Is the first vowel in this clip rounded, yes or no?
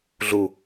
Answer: yes